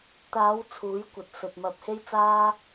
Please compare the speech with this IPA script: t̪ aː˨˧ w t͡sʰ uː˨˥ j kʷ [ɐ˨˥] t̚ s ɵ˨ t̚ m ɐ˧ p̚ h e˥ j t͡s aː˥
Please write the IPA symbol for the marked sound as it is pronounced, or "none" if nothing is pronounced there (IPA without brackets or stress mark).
ɐ˨